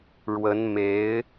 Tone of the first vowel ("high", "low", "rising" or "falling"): rising